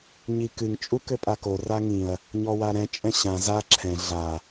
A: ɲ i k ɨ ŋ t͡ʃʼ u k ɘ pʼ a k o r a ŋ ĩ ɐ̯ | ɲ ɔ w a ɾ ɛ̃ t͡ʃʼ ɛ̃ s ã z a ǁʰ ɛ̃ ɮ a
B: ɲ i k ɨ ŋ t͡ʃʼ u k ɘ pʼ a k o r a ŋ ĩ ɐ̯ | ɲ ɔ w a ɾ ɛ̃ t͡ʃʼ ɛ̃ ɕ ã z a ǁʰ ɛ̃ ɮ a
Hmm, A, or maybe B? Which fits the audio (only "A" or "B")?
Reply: B